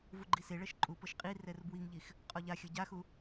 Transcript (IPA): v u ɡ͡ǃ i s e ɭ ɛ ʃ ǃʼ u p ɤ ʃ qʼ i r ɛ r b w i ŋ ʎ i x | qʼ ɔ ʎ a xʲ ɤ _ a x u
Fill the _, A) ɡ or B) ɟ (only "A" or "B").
B